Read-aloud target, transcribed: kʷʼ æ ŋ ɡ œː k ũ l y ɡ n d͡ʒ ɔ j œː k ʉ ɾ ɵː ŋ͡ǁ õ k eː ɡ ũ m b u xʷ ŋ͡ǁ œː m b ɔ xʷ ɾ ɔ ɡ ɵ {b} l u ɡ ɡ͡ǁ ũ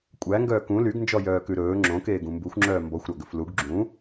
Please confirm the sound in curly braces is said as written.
no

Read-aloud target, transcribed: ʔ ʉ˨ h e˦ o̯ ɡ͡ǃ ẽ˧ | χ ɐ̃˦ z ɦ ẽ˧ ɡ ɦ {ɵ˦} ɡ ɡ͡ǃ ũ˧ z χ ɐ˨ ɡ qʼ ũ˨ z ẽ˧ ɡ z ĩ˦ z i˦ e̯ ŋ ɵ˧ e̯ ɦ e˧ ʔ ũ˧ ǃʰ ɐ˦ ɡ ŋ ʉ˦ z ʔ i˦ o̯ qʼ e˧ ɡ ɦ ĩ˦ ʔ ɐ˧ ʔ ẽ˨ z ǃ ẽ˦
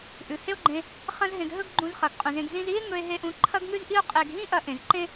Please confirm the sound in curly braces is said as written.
yes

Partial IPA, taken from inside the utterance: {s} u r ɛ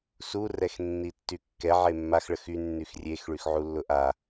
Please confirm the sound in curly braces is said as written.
yes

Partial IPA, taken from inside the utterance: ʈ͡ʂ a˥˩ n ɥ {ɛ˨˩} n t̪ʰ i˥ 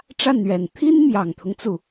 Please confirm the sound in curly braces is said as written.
yes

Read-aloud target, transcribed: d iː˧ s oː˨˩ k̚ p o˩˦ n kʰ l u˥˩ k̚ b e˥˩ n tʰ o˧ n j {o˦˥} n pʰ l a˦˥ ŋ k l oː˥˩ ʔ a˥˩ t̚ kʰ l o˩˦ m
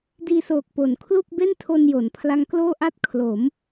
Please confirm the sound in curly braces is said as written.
no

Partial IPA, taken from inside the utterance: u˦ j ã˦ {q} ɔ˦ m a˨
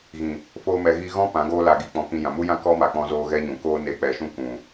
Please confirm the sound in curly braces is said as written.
no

